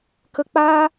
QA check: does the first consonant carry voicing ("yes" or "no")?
no